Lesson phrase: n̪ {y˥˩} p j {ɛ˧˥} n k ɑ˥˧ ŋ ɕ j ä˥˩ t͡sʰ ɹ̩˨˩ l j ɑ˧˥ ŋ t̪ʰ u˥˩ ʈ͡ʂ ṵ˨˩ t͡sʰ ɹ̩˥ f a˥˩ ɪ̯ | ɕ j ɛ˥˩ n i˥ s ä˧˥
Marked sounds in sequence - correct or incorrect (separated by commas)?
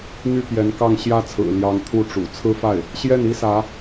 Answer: correct, correct